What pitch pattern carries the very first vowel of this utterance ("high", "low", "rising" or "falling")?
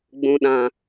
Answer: low